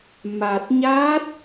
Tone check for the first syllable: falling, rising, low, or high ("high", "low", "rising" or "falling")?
low